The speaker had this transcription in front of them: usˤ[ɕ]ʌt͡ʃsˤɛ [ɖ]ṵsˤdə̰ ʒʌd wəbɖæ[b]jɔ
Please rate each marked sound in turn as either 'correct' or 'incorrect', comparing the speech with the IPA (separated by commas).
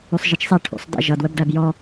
incorrect, incorrect, correct